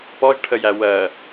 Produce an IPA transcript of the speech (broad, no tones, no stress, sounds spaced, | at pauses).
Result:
p ɔ ʒ ʈʰ ə j æ w ɜ